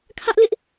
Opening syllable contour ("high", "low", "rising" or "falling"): high